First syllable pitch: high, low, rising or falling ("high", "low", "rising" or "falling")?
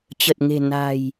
low